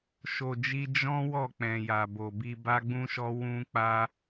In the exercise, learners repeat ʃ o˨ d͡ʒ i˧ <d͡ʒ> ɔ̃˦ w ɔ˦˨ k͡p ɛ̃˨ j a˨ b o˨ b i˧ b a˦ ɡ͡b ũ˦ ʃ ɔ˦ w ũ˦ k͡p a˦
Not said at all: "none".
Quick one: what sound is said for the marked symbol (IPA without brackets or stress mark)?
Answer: d͡ʒ